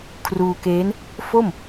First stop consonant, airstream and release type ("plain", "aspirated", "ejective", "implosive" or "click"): aspirated